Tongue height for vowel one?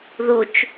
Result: high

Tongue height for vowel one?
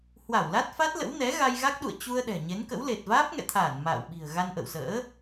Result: low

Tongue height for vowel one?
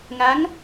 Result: low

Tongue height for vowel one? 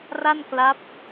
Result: low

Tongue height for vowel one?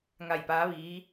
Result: low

